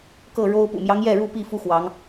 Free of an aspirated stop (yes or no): yes